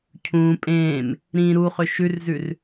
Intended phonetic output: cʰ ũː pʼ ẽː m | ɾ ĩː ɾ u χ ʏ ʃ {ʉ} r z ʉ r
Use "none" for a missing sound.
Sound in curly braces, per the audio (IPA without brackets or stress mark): ʉ